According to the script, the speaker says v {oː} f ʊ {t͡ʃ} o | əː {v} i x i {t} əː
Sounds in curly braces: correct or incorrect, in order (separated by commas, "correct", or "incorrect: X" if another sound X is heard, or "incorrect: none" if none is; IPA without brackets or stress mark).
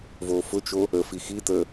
correct, correct, incorrect: f, correct